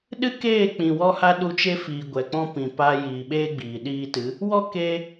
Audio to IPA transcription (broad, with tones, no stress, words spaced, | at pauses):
ɗɨ˦keː˦˨ k͡pĩ˨wɔ˧ha˧ ɗu˧t͡ʃe˦fiː˨ ɡʷɛ˨k͡pɔ̃˦pĩ˨ pa˧ jiː˨ɓeː˦ɡ͡biː˨ ɗiː˧tɨ˨˦ | wɔ˦ke˧